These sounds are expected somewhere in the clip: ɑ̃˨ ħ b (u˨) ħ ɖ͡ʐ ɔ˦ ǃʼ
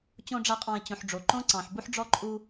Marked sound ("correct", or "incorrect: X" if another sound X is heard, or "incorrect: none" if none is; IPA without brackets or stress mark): incorrect: u˦